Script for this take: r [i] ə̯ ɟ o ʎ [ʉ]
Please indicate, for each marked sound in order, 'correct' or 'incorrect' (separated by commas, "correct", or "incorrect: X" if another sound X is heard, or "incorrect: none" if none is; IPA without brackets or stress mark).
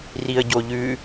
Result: correct, correct